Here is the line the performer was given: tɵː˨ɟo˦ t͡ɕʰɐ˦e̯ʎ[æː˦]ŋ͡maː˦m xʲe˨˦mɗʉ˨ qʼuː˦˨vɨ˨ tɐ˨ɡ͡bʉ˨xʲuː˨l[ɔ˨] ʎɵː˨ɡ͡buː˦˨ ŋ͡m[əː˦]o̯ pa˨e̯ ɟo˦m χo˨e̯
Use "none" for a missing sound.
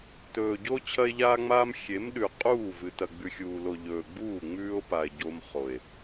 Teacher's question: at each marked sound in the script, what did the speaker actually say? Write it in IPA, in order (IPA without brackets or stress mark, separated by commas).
aː˦, o˨, ʉː˦